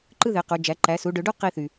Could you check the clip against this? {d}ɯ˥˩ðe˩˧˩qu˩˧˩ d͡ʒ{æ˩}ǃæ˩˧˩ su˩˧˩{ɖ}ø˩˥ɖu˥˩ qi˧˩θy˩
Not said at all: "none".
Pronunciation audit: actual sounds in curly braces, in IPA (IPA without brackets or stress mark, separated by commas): ǃ, æ˩˧˩, ɖ